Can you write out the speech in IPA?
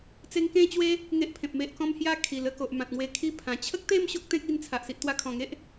t͡se˧ŋkẽ˥˧t͡ɕwe˦ | ŋe˦ʔpʰẽ˨p̚ me˨ʔkɔ̃˧mhja˧ kʰi˨˩lə˧ko˨ʔ mã˨t̚ŋwe˧kʰi˥˧pʰã˨˩ t͡ɕʰə˦k̚t̪e˥˧m ɕo˦k̚t̪ẽ˦k̚ i˧nt͡sʰa˨ʔ si˨ʔt̪wa˧kʰɔ̃˨˩ŋe˦ʔ

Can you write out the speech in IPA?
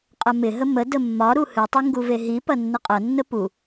qʼɐmɪɦə mə dəmːɒɾu hɨtˤɨ ŋɡuveɦipɐ nːəqʼɐnːə pu

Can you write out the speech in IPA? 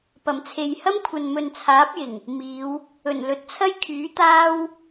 pɐ˨˩mt͡sʰe˨j hɐ˥mkʷʰɐ˨nmɵ˨n t͡sʰaː˨˥p̚jɪ˨˩ŋ | miː˨˧w | ɵ˨˩n lɵ˨˥t̚t͡sʰɐ˥jkʰyː˨˥ t̪aː˥w

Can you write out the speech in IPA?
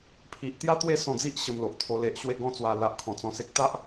pʰi˨ʔt̪ja˥˧t̪we˥˧ sɔ̃˧d͡zi˦ʔ ɕə˧mlo˨ʔt̪ʰo˧ le˨ʔɕwe˧ɡɔ̃˧ t͡swa˨˩la˨ʔ kʰɔ̃˨˩t͡sɔ̃˧se˦k̚ t̪a˦ʔ

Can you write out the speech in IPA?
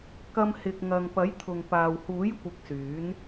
kɐ˧mhɪ˨k̚ŋɐ˨ŋpɐ˨˥j t̪ʰʊ˨ŋpaː˨w huː˨˥jkʷɪ˨k̚ syː˨˥n

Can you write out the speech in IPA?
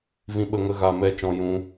vĩ˦ɓə˦ŋə˦ ɣa˧mɛ˦˨ t͡ʃɔ̃˧ jũ˦

